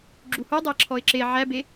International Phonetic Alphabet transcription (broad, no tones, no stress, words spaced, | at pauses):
ɡ͡ǁuhu dˤɛǁʰɔɪ̯ǁe ʕæbe